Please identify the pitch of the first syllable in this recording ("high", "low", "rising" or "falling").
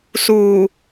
low